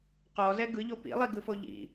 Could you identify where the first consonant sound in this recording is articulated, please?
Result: uvular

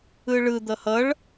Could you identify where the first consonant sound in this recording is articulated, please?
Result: retroflex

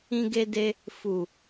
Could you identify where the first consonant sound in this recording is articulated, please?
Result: velar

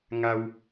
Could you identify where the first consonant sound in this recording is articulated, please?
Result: velar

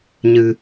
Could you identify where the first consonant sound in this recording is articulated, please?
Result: palatal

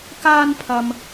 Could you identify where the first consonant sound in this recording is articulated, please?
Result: velar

